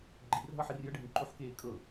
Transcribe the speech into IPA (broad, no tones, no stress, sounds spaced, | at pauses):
ɡ͡ǃ i r ɦ ɤ ħ i r j ə ɖʱ ẽ ǃ u ħ k eː kʼ ɤ